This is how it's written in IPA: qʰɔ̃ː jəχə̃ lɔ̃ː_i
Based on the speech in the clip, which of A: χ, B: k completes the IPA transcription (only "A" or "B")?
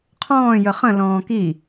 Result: B